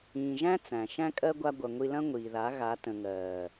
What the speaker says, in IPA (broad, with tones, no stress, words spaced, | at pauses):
ĩː˨ʒæ̃˦ t͡sæ̃˨ ʃæ̃˧kʼɜ˧ ɡʷa˧ ɡʷɐ˨ ŋʷi˧lɐ̃˦ ŋʷiː˨ða˨˦ ɣa˨˦ tə̃˨ŋɜː˨